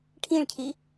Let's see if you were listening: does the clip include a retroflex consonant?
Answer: yes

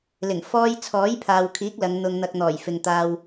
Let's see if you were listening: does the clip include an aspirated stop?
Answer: yes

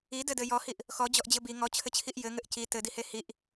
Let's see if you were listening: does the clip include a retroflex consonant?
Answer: no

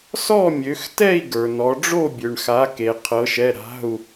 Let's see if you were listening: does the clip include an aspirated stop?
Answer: yes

